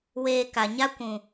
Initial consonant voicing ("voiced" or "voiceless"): voiced